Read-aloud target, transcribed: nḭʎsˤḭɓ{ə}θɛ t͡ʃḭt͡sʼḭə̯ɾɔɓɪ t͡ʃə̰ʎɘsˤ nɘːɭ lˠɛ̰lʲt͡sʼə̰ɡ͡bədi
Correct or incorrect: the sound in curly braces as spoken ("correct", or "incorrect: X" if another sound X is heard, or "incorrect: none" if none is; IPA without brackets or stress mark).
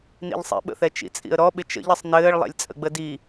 incorrect: ə̰